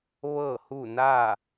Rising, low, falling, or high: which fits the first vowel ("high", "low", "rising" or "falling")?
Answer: falling